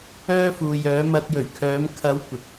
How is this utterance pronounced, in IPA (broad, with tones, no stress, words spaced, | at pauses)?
œː˥fuː˧ jœː˨˧mɐ˧t̚jɵ˨˩ɥkʰœː˨˧m kʰɐ˨˧w kʷɪ˨k̚